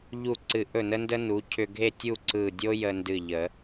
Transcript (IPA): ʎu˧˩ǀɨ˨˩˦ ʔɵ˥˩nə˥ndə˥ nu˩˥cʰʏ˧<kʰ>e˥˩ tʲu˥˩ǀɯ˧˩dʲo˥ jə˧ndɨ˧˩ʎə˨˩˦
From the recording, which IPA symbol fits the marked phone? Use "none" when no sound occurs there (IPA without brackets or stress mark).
ɡʱ